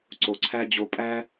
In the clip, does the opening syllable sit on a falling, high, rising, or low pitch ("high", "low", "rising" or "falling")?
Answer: low